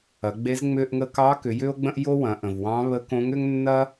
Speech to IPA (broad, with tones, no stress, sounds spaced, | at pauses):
ɐ˩˧ ɡ͡b e˧˥ z ŋ͡m ʏ˧ ʔ ŋ ə˧ k ɑ˧˥ k ʏ˩˧ j ʏ˥ o̯ ɡ͡b ə̃˥ ʔ j o˥ w ɐ̃˩˧ ʔ ə̃˩ v w ɑ̃˧˥ β ə˧˥ k õ˧˥ ŋ ʏ˥ ŋ nː ɐ˥